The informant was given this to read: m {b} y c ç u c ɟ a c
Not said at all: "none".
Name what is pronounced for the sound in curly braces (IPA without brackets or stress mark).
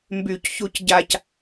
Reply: b